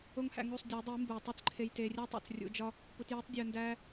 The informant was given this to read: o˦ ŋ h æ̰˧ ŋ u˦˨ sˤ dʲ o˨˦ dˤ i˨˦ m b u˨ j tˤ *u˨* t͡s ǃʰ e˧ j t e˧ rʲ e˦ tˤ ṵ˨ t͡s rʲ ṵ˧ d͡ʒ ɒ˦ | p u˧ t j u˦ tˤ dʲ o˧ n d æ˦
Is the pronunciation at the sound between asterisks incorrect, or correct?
incorrect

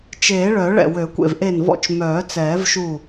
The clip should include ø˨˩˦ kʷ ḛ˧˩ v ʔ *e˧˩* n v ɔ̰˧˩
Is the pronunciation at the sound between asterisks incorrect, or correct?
correct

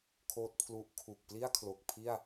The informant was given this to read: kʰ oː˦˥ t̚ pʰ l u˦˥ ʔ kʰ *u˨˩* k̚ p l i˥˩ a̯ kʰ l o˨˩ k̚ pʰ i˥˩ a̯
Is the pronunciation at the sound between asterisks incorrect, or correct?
correct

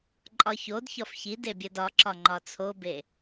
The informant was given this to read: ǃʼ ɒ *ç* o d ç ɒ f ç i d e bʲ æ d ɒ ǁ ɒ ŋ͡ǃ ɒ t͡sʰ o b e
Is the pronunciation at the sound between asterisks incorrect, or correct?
correct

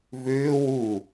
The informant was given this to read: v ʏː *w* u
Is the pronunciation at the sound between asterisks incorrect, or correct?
correct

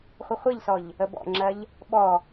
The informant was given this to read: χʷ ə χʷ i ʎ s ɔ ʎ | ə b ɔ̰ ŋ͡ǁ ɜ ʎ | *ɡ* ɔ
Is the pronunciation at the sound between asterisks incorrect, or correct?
incorrect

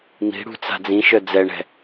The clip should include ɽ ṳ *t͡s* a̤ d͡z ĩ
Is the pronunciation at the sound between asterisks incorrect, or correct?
correct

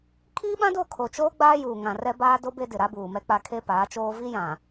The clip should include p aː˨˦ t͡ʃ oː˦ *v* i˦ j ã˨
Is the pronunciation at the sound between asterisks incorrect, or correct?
correct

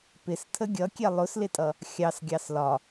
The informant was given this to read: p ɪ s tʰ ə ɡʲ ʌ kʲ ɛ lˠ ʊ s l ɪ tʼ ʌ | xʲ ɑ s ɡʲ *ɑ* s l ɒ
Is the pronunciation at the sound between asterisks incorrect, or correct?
correct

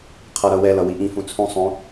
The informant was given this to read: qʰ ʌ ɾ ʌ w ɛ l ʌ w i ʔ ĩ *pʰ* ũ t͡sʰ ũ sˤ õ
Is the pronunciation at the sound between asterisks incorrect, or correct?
incorrect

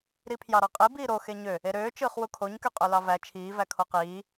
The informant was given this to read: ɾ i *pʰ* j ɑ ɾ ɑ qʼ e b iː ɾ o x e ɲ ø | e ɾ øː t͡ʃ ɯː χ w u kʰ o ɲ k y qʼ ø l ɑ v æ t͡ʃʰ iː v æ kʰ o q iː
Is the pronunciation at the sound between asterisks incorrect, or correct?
correct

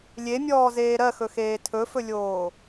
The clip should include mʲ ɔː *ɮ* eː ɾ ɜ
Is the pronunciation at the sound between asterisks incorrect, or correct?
incorrect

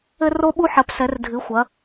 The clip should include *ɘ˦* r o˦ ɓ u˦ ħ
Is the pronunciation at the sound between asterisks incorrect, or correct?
correct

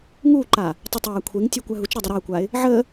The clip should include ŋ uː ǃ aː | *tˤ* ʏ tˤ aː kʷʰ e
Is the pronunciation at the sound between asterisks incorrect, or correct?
correct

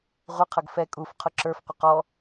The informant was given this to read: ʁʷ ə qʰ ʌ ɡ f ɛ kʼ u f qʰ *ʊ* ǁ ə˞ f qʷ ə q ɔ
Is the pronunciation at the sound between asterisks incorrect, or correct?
correct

